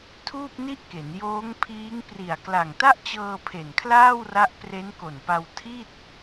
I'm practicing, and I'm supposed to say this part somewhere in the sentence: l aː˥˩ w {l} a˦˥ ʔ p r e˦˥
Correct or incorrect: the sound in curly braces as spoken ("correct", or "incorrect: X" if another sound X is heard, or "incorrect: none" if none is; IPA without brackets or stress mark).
incorrect: r